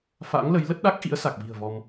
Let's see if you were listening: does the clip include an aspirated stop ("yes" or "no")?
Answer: no